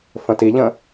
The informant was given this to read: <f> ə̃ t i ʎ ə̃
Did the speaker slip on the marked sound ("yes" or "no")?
no